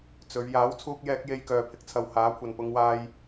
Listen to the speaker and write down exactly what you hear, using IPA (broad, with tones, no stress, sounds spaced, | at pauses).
t͡s ɵ˨˧ ɥ j aː˨˥ w t͡sʰ uː˧ k̚ j ɛː˧ k̚ j e˧ j k œː˨ pʰ ɪ˨ k̚ t͡sʰ ɐ˨ w h aː˨˥ kʷʰ ɐ˨ n p ʊ˨˧ ŋ w aː˧ j